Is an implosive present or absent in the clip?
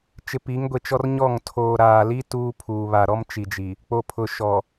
absent